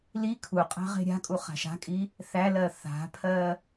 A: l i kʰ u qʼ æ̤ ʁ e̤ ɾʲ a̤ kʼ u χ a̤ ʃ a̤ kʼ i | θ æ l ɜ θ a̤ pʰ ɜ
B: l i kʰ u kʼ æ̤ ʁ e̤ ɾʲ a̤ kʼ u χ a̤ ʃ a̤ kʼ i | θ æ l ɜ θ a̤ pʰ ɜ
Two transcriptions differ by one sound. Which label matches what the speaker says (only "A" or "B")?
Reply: A